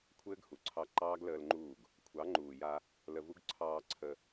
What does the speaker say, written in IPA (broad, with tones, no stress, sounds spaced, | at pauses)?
kʷʰ ɘː˦ ɡ h u˨ ǀʰ ɑ˧ ǃ ɑː˦ ɡ l əː˧ l ŋ͡ǃ uː˦˨ ɡ | kʷʰ ɑ˨˦ ŋ͡ǃ uː˨ j a˧ | l ə˧ v u˦ ɡ ǀʰ ɑː˧ ǀʰ ə˧